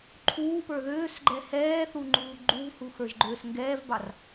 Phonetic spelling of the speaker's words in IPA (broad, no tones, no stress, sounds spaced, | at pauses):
ǃʰ uː p ə˞ ð øː s ɡ͡ǃ ɛ h ɛː θ u ŋ͡ǃ uː ɡ͡ǃ u v h u x ə˞ ʒ ɡ͡ǃ øː s ŋ ɡ ɛː v b ɑ r